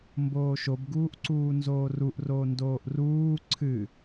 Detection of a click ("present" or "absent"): present